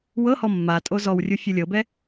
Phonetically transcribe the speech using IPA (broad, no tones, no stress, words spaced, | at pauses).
wɤhɔ mːatʼo zɔwrʲu fʲɯlʲɤbɛ